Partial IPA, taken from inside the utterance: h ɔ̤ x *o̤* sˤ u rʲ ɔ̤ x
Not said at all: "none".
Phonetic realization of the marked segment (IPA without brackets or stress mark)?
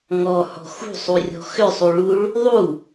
ṳ